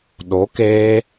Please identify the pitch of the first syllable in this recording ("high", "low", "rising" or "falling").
rising